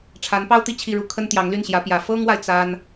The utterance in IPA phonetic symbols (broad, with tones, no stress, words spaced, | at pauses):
ʈ͡ʂʰa˧˥npɑ˥ʊ̯t̪i˥˧ t͡ɕʰi˥˧ɻu˥˩ kʰə˥nt̪jɑ˧˥ŋly˥˩nɕjä˧˥ pjä˨˩ fɤ˥ŋwa˨ɪ̯ t͡sa˥n